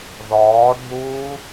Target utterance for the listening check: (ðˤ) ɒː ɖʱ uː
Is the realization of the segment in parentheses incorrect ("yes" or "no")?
yes